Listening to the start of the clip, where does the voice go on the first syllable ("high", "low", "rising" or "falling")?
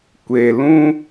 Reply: low